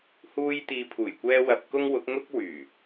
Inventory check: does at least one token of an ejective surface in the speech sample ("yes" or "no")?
no